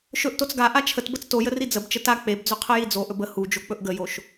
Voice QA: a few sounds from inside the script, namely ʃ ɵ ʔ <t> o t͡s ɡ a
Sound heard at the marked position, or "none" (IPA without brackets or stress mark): t